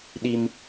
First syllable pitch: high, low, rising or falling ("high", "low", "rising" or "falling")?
high